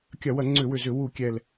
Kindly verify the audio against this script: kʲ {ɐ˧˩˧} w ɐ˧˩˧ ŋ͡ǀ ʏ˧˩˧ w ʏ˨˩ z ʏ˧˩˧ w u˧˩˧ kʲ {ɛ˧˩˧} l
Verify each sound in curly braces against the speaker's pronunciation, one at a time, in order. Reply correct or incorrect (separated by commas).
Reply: correct, incorrect